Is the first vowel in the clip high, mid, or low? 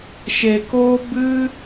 mid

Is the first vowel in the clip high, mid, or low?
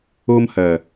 mid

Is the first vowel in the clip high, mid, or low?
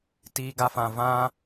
high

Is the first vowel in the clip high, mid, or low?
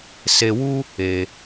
mid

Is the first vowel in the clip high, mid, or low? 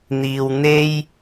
high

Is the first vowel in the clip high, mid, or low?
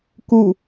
high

